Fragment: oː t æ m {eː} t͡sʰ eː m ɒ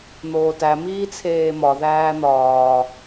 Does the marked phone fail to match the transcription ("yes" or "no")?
yes